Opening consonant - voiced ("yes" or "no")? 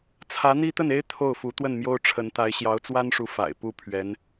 no